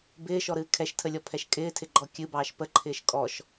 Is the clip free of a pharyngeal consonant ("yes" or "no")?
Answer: yes